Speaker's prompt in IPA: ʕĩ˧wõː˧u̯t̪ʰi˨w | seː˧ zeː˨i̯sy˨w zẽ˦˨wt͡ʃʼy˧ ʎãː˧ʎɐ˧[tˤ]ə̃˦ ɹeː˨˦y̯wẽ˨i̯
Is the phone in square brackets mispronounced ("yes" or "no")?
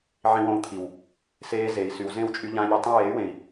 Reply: no